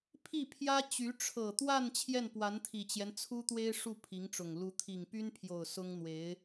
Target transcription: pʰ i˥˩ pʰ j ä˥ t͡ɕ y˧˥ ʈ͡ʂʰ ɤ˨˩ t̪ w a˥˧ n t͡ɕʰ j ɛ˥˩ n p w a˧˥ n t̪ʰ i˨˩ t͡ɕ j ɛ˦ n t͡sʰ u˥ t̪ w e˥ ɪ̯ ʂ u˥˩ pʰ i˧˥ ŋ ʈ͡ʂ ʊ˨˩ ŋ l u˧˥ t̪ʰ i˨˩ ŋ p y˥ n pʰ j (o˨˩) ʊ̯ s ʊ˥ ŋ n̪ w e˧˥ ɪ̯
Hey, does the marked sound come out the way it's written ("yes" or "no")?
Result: yes